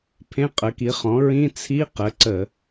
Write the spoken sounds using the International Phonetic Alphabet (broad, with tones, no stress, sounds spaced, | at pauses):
pʰ ẽ˧˥˧ qʼ ə˩˥ k i˩˥ χ ɔ̃˩˥ ɹ ĩ˧˥˧ t͡sʰ i˧˥˧ q ə˩˥ ǀ ə˧˩˧